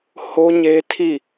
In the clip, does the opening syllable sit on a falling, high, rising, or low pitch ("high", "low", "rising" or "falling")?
high